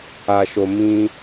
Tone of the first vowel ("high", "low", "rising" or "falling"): low